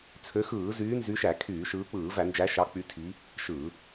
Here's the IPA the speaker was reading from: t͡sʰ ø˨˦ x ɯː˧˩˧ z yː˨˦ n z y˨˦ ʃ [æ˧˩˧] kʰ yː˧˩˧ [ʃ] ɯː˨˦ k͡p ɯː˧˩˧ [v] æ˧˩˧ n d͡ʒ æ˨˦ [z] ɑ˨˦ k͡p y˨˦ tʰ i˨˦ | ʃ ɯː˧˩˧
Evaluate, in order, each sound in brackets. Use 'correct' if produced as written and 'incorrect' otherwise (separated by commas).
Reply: correct, correct, correct, incorrect